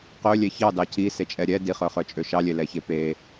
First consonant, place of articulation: uvular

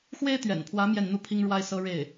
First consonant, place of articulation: velar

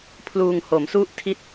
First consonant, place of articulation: labial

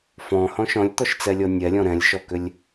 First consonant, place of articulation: labial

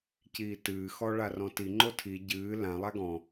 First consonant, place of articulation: palatal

